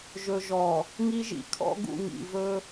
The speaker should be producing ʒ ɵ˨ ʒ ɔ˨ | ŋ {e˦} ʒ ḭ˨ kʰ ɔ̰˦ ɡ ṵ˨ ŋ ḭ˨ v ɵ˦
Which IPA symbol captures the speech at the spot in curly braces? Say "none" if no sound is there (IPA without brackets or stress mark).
i˦